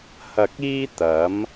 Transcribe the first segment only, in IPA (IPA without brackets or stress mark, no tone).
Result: h